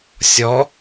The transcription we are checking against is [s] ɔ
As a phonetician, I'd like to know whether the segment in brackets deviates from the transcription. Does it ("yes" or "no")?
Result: yes